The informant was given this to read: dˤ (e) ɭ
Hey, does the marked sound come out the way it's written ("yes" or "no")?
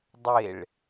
yes